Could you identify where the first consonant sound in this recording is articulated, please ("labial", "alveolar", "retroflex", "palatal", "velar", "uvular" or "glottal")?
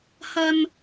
glottal